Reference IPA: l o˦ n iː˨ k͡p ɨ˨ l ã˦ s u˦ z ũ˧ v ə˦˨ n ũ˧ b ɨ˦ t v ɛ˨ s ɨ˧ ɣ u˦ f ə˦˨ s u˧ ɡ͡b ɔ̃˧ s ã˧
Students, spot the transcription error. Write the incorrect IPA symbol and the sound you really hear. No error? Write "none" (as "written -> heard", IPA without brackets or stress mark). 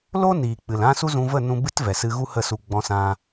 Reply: f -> h